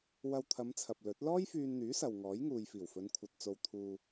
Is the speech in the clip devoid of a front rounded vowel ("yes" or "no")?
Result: no